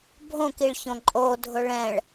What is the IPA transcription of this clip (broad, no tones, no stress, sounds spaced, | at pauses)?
bʱ õ k i ɭ ç õ ǃʼ o dʱ ʊ ɭ ɛ̃ ɭ